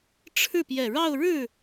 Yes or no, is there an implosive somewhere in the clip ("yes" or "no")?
no